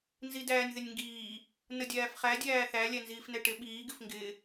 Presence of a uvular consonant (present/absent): present